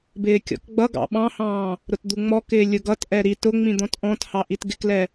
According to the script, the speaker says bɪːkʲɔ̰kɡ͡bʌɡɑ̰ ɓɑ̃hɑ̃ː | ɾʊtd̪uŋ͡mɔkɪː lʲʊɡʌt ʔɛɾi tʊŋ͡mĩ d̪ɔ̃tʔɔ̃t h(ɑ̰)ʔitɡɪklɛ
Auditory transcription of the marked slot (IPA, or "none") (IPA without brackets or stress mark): ɑ